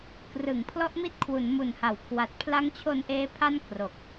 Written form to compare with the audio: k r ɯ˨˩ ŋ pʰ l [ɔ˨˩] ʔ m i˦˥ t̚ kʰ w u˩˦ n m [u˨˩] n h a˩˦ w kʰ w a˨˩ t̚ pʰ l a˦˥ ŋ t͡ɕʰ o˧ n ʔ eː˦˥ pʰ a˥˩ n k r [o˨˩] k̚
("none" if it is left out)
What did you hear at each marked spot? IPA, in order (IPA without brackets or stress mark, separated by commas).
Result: ɔ˦˥, u˨˩, o˨˩